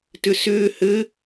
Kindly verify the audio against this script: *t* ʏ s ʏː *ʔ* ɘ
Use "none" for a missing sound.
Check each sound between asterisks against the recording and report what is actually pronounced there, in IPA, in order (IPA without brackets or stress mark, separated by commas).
t, h